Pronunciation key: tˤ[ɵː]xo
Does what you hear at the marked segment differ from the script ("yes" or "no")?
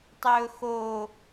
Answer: no